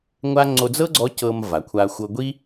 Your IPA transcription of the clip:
ŋʷ a˥ ŋ͡ǀ o˧ d͡z ɤ˥ ɡ͡ǀ ɔ˧˥ c ɤ˧ m v a˩˧ kʷʰ a˧ xʷ ɤ˧ ɡʷ i˥

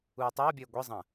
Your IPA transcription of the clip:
uː tˤ ɐː bʲ ɘː ɡʷ i zˤ ɐ̃

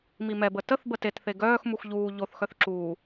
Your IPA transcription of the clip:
m i m ɛ b ə t ə θ b ə t e t θ e ɡ œː x m u x ʎ uː ʎ o θ x œ θ ǁ uː

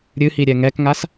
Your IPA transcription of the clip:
ɾʲ ɨ h i ɾʲ ɛ ŋ ɛ k ŋ a s

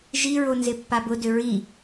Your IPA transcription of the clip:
ʒ i ɹ o n z ɪ pː a b ʊ d ʏ ɹ i

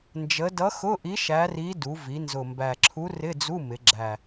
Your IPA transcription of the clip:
n d͡ʒ ə˧˥ d ʌ˧˥ x ʊ˧˥˧ ʔ i˧˥ ʃ æ˧˥ r i˧˥ d u˩˧ v i˩˧ n z ʊ˨˩ m b æ˨˩ ǁʰ u˧˥ r ɪ˧˥˧ d͡z u˧˥˧ m ɪ˩˧ ɡ͡ǁ æ˨˩

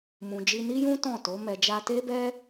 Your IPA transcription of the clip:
m ũ˨ d͡ʒ i˧ n i˦ j ũ˦ t ɔ̃˦˨ t o˨˦ m ɛ˧ d͡ʒ a˧ t e˦ b ɛ˦

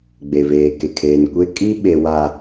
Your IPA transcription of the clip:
ɡ͡b e˨ v eː˨ k e˨ kʰ eː˨ n kʷ e˦ kʼ i˦ ɓ e˨ w a˨

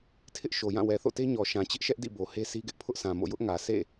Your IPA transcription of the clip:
tʰ ɪ˦ ʔ ʃ o˨ j ã˦˨ w ɛ˨ θ o̰˦˨ t e˦ ɲ ɔ˨ ʃ ã˨ t͡ɕ ɪ˦ ʔ ʃ ɛ˦ ʔ d ḭ˦˨ b o˨ h e˦ s i˦ ɡ ɪ˦ ʔ pʰ ʊ˦ ʔ sʰ ã˨ m o̰˦˨ j ʊ˦ ʔ ŋ ä˨ sʰ ḛ˦˨

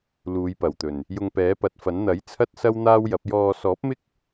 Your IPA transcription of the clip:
l uː˨˧ j p ɐ˨˩ w t̪ ɵ˨˩ n | j ʊ˧ ŋ p ɛː˨˥ p ɐ˨˥ t̚ f ɐ˨˥ n n̪ ɐ˨˥ j t͡sʰ ɐ˥ t̚ s ɐ˥ w n̪ aː˥ w j ɐ˨˥ p̚ j ɔː˧ s ɔː˨˥ p̚ m ɪ˥ k̚

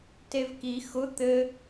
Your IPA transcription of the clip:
t e v k i x ʊ t̪ ɘ

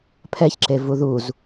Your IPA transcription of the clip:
pʰ ɛ ç ǁ e v u ð u z

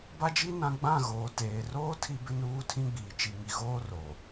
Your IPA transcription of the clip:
b a˦ d͡ʒ i˦ n ã˦ ɡ͡b ã˦˨ ɣ oː˨ t eː˨ r oː˦ tʰ i˦ b ɪ˦ n uː˦ tʰ ĩ˦ ɡ͡b iː˨ t͡ʃ i˨ ŋ i˨ ɣ oː˦ r o˨

